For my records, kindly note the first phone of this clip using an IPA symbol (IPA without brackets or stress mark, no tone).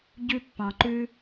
ɟ